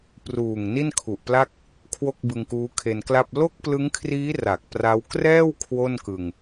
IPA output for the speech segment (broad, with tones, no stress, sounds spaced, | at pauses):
p r uː˨˩ ŋ n i˥˩ n kʰ u˨˩ ʔ p l a˥˩ k̚ | kʰ w o˥˩ k̚ b ɯ˧ ŋ k uː˦˥ kʰ e˧ n k l a˥˩ p̚ l o˥˩ k̚ p l ɯ˦˥ ŋ kʰ r iː˦˥ r a˨˩ k̚ p r a˦˥ w k r ɛː˥˩ w kʰ w o˥˩ n k ɯ˧ ŋ